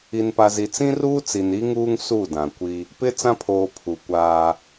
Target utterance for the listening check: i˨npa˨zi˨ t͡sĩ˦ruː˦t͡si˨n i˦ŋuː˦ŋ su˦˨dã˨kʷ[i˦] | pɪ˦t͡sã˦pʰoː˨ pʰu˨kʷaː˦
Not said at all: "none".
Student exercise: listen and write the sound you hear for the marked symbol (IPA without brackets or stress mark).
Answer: i˦